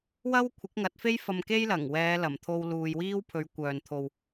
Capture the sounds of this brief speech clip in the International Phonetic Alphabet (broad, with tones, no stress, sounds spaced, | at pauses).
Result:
w ɐ˥ w kʷʰ ɪ˨˥ k̚ ŋ ɐ˨˥ t̚ f e˥ j f ɐ˧ m k e˥ j l ɐ˨˩ ŋ w ɛː˨˧ l ɐ˨˩ m t̪ʰ o˧ w l uː˧ j w iː˥ w pʰ ɵ˨˧ ɥ kʷ œː˨ n t̪ʰ o˨ w